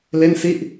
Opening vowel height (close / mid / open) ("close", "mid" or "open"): mid